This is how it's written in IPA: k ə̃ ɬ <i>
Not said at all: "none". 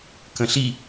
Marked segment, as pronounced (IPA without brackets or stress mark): i